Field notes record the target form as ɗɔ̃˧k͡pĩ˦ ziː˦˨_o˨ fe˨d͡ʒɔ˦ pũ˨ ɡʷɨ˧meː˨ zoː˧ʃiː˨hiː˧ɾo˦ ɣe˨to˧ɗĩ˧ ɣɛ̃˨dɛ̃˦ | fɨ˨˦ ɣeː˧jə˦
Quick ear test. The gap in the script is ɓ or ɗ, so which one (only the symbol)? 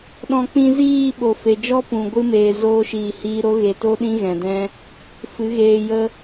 ɓ